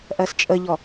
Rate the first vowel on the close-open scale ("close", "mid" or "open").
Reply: mid